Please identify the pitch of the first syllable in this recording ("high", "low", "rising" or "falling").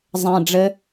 low